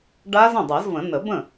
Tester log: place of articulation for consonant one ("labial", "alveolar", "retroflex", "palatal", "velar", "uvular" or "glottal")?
retroflex